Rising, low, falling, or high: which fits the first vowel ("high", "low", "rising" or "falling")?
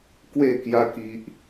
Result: falling